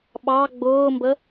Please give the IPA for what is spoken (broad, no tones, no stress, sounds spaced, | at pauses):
ɓ ɑ ɡ͡b ʊː m b ə